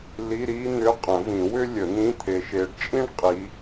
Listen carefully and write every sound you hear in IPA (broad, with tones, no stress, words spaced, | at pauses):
li˧˥˧ɾi˥n̪ʏ˧˥˧ qʼə̃˨˩˦vĩ˨˩˦ wʏ˥ lʲə˨˩˦n̪ĩ˧˥˧t̪ʰe˨˦ ʃe˨˦ɖt͡ʃʼĩ˥ɳqʼi˨˦